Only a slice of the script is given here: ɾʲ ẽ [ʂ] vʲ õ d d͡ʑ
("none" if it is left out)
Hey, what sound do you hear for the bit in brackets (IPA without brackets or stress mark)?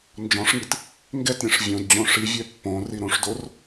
ʂ